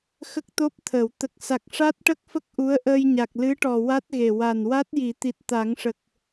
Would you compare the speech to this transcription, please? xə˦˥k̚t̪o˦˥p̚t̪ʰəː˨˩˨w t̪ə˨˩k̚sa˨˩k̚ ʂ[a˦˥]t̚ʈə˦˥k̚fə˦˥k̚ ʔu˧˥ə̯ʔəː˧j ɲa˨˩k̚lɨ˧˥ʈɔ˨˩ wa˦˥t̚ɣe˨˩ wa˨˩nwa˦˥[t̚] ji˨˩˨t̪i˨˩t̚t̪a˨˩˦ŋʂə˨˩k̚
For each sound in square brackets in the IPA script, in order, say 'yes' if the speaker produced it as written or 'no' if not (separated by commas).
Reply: yes, yes